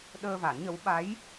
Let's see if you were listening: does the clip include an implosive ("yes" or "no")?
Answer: yes